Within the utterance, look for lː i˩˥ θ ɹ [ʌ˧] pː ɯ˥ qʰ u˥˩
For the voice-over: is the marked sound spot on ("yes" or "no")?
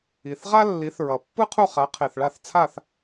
no